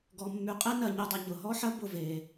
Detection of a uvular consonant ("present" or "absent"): present